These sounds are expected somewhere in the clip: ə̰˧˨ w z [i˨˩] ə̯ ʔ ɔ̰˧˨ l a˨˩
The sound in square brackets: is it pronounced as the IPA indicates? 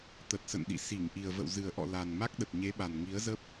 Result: no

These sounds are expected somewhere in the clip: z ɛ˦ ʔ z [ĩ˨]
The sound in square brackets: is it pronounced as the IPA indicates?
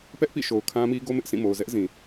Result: yes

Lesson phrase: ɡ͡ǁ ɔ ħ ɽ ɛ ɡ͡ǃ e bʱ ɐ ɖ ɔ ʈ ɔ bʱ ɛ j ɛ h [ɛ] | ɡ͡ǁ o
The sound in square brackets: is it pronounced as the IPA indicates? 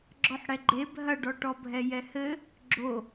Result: no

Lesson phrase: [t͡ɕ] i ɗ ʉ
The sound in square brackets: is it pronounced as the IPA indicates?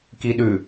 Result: no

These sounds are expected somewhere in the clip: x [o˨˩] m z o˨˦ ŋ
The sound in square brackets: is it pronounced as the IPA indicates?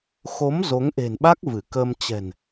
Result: no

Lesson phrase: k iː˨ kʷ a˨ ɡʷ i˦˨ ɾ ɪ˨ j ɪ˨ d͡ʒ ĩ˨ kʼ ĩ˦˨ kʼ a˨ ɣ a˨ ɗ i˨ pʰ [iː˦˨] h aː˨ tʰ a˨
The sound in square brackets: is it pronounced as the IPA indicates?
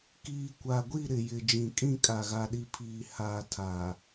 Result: no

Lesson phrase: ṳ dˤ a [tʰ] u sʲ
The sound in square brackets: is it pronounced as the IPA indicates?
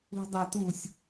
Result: no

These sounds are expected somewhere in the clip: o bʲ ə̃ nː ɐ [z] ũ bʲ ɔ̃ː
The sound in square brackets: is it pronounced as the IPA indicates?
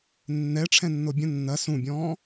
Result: no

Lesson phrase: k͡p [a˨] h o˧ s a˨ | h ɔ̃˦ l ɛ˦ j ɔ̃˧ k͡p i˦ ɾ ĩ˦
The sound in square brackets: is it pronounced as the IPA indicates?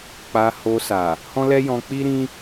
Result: no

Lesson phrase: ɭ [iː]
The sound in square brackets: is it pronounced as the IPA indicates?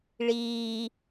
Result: yes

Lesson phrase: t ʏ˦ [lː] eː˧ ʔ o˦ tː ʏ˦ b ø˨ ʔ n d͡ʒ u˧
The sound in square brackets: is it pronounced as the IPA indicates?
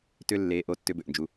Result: yes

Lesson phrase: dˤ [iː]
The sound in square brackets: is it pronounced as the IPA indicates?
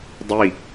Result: no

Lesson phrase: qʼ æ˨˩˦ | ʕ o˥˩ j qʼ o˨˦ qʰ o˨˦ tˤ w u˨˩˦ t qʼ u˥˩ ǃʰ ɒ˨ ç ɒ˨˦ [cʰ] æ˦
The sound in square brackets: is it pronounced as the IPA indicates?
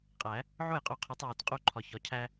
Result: yes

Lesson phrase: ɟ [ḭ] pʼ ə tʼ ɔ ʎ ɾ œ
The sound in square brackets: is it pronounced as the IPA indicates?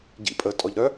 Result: yes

